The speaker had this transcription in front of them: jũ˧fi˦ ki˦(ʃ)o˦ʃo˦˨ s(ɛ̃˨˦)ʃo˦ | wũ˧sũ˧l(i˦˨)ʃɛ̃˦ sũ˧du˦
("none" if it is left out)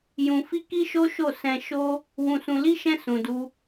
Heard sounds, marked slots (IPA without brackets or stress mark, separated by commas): ʃ, ɛ̃˧, i˦